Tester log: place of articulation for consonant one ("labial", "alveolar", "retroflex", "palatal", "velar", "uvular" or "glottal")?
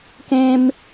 velar